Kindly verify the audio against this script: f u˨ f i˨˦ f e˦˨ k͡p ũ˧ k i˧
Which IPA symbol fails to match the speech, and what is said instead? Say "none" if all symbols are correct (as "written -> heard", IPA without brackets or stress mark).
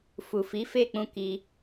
none